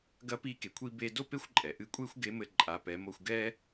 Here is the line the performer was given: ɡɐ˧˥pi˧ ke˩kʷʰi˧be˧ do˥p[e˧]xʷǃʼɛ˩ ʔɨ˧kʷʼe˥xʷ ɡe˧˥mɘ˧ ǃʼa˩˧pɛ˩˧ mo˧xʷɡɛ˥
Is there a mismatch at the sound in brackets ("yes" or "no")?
yes